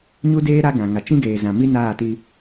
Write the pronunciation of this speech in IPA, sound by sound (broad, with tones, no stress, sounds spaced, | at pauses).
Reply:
ɲ u˦ d eː˦ ɾ a˦ ɡ ã˨ ŋ a˨ t͡ʃ ĩ˦ ɡ eː˨ z ã˨ m i˦ n aː˦˨ t i˦